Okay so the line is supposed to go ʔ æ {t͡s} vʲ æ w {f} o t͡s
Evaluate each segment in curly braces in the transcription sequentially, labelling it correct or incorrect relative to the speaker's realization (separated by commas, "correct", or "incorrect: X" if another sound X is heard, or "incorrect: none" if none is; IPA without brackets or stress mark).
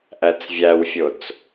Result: correct, incorrect: fʲ